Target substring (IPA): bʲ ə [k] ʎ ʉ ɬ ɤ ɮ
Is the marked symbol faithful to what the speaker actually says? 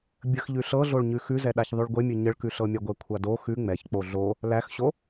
no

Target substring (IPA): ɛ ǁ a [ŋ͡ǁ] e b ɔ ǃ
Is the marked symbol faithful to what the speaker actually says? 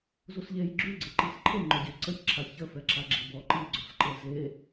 no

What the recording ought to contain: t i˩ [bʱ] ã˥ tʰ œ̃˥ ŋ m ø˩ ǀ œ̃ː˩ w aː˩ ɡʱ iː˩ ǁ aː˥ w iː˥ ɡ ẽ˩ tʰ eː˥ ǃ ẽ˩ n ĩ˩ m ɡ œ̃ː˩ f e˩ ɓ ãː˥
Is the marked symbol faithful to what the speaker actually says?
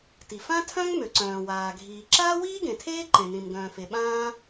no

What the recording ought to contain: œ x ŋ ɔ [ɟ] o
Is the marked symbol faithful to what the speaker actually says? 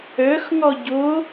yes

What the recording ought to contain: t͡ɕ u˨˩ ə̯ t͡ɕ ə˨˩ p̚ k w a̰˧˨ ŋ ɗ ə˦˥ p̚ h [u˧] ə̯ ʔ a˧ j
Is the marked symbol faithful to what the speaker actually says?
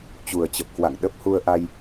yes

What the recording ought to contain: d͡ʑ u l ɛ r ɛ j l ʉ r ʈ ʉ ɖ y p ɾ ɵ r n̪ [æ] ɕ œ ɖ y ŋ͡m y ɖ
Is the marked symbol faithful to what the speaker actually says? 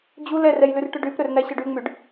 yes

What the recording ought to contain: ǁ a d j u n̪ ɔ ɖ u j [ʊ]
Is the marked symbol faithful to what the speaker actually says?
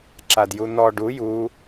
no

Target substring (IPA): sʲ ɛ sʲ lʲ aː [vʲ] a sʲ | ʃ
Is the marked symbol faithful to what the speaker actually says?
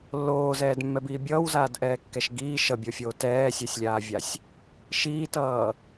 yes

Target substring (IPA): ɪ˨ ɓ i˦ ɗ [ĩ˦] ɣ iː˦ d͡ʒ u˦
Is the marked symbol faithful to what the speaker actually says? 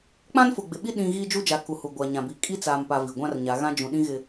yes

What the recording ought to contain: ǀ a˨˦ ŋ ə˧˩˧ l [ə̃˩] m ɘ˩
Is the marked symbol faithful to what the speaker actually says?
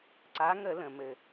yes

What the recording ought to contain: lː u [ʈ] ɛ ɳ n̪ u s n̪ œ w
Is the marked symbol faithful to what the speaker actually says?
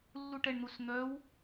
yes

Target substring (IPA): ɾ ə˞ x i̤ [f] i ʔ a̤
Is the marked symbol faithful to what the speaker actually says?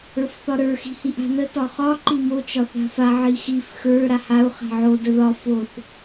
no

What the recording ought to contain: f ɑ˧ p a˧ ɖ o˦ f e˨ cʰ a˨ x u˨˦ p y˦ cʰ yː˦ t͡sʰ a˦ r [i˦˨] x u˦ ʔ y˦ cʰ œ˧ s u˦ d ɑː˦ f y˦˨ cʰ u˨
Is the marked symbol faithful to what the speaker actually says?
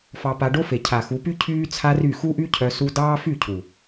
no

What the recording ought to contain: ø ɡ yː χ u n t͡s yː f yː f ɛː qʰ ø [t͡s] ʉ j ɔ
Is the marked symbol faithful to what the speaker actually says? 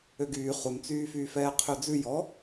no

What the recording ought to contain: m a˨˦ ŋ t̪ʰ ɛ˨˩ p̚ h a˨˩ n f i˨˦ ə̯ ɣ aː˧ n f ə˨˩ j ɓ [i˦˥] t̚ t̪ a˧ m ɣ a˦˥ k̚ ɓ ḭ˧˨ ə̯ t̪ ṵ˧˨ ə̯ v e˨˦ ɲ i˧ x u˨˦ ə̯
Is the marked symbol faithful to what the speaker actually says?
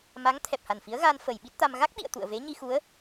yes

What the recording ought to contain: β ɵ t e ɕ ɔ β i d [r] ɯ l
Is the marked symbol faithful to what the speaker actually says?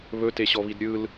no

